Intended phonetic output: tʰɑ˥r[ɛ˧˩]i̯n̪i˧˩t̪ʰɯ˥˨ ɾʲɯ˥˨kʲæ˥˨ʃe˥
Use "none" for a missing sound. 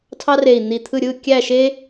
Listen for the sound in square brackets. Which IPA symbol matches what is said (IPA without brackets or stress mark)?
e˧˩